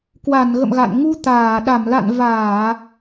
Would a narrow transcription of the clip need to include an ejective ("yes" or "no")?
no